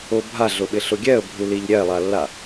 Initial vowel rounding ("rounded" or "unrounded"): rounded